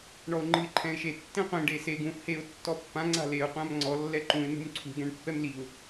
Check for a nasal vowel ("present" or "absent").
present